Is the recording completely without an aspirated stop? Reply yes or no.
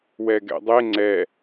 yes